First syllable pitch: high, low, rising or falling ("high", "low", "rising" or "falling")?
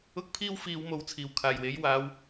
high